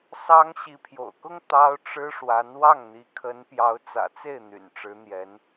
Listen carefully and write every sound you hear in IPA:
s ɑ˥ ŋ ɕ i˧˥ pʰ j o̰˨˩ ʊ̯ k ʊ˥ ŋ t̪ ɑ˥ ʊ̯ ʈ͡ʂ ɻ̩˥ ʂ w a˧˥ n w ɑ˥˩ ŋ n̪ i˧˥ kʰ ə˧˥ n p j ɑ˧˥ ʊ̯ t͡s ä̰˨˩ t͡s e˥˩ ɪ̯ n̪ y̰˨˩ n ʈ͡ʂ ɻ̩˧˥ n̪ j ɛ˧˥ n

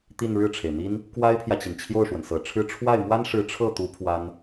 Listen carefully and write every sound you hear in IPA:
t̪ i˥˧ n ɻ ɻ̩˥˩ ʈ͡ʂʰ e˩ ɪ̯ n̪ i˥ n | k w a˥ ɪ̯ pʰ j ä˨ t͡ɕ i˩ n t͡ɕʰ j o˥˩ ʊ̯ ʂ w ə˩ n s ɤ˨˩ ʈ͡ʂʰ ɻ̩˥ ʈ͡ʂʰ w a˥˩ ɪ̯ m w a˥ n ʂ ɻ̩˧˥ ʈ͡ʂʰ ɤ˥˩ t̪ u˧˥ pʰ w a˥ n

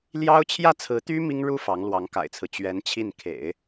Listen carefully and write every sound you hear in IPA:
l j ɑ˥ ʊ̯ t͡ɕʰ j ä˥˩ t͡sʰ ɹ̩˧˥ t̪ y˥ m i˥ ŋ ɻ u˥ f ɑ˧˥ ŋ l w ɑ˧˥ ŋ k a̰˨˩ ɪ̯ t͡sʰ ɹ̩˦ t͡ɕ ɥ ɛ˧˥ n t͡ɕʰ i˥˩ n kʰ ḛ˨˩˦ ɪ̯

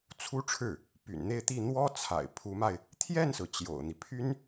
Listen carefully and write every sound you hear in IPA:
t͡sʰ u˥ ʈ͡ʂʰ ɻ̩˥˩ | p y̰˨˩ n n̪ e˥˧ ɪ̯ t̪ i˥˩ n̪ w ɔ˥ t͡sʰ a̰˨˩ ɪ̯ pʰ u˧˥ m a˧ ɪ̯ | t̪ʰ j ɛ˥˩ n s ɹ̩˩ t͡ɕ j o̰˨˩ ʊ̯ n̪ i˦ pʰ y˥ n

